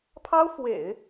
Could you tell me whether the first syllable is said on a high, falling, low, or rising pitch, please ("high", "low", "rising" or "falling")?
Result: high